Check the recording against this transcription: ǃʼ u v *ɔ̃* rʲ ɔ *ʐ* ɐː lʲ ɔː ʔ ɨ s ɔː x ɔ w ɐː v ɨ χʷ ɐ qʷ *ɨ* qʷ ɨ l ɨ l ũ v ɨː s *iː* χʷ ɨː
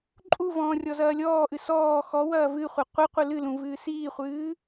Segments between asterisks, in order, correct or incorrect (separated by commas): incorrect, incorrect, correct, correct